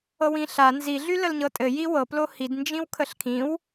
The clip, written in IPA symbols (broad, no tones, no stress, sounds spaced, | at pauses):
ɤ w ĩ ɬ a n z i ɮ y l ə l ɲ ɤ tʼ ɘ j i w ɤ p l o h i d n d͡ʒ ĩ w kʰ ə ɬ kʰ ĩ w